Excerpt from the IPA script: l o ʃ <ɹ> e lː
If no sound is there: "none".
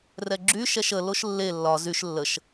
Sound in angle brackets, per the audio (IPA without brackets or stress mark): lː